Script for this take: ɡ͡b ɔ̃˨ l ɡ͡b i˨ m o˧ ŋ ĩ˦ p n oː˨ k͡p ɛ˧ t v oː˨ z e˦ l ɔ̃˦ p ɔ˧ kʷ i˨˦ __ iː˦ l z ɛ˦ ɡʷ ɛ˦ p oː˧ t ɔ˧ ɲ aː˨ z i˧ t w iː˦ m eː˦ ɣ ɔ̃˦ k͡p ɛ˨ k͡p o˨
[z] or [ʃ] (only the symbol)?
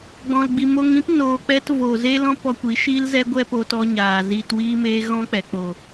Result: ʃ